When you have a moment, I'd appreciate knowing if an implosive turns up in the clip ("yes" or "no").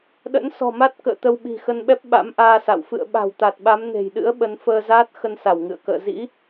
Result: yes